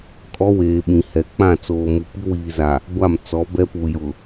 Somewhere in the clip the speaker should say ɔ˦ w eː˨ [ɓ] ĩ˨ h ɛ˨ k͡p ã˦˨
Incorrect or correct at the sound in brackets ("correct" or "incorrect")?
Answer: correct